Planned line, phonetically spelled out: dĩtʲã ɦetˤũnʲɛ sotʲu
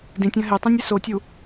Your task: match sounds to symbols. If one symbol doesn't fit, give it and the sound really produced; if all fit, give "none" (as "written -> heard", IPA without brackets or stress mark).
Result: none